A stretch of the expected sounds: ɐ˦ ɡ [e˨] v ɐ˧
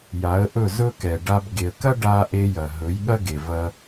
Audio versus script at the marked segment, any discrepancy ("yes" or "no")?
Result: no